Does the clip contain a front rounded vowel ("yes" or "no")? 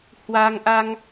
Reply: no